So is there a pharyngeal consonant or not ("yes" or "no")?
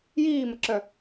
no